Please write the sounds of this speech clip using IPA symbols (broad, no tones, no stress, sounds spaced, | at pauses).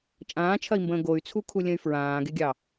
t͡ʃʼ ãː t͡ʃʰ ɐ i̯ m b ə̃ː ɡ o y̯ t͡sʰ u kʰ u lʲ ə̃ y̯ f ɹ ãː ɡ e ɡʲ ɑ